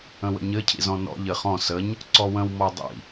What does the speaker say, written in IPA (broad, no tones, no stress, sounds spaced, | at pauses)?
ə̃ w ə̰ ɲ ɘ cʰ ḭ z ɔ̃ n ɔ̰ ʎ ɘ χ ɔ̃ s ə ɲ | ǀ ɔ w ə̃ w m ɔ dˤ ḭ